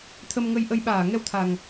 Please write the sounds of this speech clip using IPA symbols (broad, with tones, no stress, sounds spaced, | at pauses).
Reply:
t̪ʰ ə˧ m ŋ ə˧ j ʔ ə˧ j ɓ aː˧˩ ŋ ɛ˧ w t̪ʰ a˨˩ ŋ